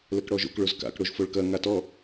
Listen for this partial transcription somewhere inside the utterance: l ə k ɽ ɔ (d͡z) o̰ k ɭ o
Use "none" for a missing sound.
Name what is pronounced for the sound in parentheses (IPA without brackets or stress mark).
ʒ